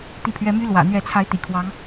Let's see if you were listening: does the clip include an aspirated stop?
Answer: yes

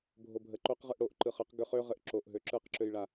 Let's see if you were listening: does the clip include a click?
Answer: yes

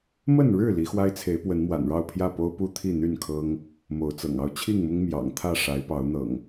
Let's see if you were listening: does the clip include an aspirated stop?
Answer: yes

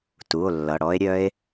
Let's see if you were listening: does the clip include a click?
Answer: no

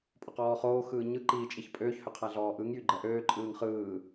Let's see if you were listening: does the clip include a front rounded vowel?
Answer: yes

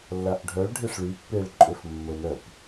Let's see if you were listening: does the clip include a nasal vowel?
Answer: no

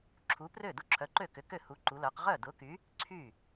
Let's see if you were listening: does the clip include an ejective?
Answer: no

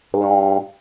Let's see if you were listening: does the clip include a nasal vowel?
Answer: yes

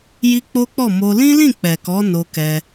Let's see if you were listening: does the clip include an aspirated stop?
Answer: no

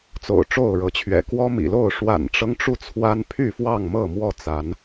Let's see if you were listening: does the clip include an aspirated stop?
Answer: yes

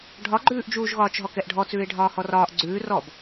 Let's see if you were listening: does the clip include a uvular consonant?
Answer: no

